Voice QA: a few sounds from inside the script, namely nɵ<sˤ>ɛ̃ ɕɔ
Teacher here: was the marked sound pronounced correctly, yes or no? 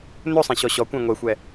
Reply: yes